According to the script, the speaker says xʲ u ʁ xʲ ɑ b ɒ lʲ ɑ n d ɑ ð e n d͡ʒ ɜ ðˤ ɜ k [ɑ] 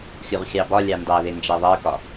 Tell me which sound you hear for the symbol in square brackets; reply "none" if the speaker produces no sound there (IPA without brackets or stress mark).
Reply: ɒ